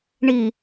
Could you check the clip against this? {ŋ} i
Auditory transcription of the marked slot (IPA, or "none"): ɳ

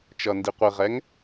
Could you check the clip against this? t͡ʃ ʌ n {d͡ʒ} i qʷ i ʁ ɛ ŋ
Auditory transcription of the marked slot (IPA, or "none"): d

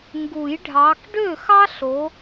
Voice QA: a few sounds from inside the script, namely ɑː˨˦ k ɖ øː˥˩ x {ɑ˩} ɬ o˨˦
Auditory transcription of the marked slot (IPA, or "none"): ɑ˥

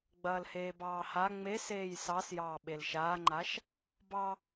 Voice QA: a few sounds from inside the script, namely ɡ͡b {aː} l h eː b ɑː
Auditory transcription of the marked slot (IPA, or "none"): ɐː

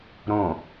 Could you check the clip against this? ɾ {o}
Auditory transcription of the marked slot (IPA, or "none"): õ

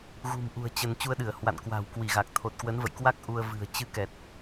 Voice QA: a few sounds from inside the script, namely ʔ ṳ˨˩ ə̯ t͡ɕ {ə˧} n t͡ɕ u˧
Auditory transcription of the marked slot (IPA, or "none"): ə˧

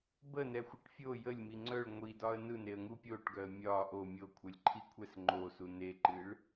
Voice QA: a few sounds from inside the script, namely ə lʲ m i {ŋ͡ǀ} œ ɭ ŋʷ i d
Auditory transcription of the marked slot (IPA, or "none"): ŋ͡ǀ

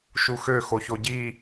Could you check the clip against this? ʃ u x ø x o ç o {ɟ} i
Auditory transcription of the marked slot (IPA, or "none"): ɟ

